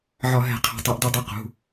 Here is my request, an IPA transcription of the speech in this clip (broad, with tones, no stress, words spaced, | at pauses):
ʕɒ˧˩˧ɦɛ̤˧˩˧ qʰe̤˩˧˩tˤɛ˧˩˧ʔdu˧˩˧dˤu˩˧˩ qṳ˩˧˩